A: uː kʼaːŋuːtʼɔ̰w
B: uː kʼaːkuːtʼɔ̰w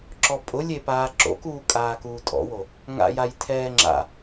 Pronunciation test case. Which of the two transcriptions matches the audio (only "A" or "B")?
B